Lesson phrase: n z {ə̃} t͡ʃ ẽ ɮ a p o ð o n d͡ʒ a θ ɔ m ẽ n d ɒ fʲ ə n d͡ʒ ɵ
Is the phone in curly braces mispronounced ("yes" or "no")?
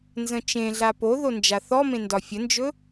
no